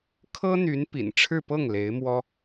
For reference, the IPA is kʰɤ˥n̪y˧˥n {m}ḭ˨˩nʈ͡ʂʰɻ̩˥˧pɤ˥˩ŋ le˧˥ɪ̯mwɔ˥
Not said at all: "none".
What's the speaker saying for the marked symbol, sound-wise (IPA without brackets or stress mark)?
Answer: p